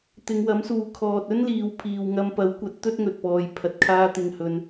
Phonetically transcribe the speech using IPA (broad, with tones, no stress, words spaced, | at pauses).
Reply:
t̪ɪ˨˧ŋwɐ˨˥msuː˨˧ kʰɔː˧t̚ ɵ˥nliː˨˧w pʰiː˨wŋɐ˧mpɐ˨˥wkʷɐ˨˥t̚ t̪ɵ˥t̚ŋɵ˨t̚pɔː˨j pʰɐ˧t̚kʰaː˥ t̪ɪ˧ŋhɵ˧n